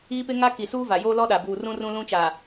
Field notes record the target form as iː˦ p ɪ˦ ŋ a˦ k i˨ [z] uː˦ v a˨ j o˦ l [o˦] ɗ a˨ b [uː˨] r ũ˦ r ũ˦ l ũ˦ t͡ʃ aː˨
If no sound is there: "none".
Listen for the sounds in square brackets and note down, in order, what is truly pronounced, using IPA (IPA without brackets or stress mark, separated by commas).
s, ɔ˦, uː˨